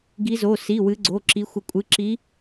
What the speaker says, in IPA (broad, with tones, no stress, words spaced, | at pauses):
ɡi˨˦zo˩˧˩si˩˧˩ wɨ˨˦ɡ͡ǀo˩˧˩ǁi˨˦xʷə˨˦ kʷʼɨ˩˧˩ǁi˨˦